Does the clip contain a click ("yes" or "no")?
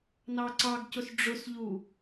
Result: yes